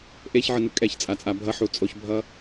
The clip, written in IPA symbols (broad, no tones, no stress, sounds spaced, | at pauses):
ʔ e ç ʕ ɯ n ɯ kʼ ɛ ç t͡sʼ a t͡sʼ a bʱ ʌ ħ u t͡sʼ o ç bʱ ʌ